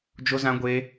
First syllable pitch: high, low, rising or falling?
high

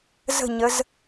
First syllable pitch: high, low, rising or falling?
falling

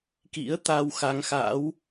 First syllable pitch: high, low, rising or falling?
rising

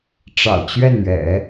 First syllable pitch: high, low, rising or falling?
low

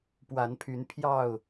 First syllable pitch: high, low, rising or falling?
rising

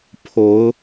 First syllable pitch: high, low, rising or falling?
rising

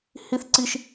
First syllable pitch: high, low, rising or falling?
high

